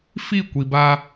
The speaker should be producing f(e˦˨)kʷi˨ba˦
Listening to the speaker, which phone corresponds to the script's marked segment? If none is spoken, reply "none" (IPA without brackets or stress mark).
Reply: i˦˨